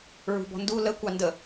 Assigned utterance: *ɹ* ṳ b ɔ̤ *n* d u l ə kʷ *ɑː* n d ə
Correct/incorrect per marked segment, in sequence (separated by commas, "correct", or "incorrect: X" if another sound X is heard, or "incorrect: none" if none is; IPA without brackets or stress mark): correct, correct, incorrect: ɑ